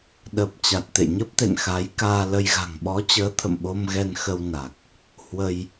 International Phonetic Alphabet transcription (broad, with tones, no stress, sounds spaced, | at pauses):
ɗ ə˨˩ p̚ t͡ɕ a˨˩ t̚ t̪ ḛ˧˨ ɲ ə˦˥ p̚ t̪ ḛ˧˨ n x a˨˦ j k aː˧ l ə˧ j ɣ a̤˨˩ ŋ ɓ ɔ˨˦ t͡ɕ əː˨˦ t̪ʰ ə̰˧˨ m ɓ o˧ m ɣ ɛ˧ n x ə˧ w n a˨˩ k̚ | h w ə˧ j